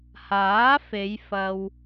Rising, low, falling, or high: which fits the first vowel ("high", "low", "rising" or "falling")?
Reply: rising